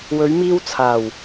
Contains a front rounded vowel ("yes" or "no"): no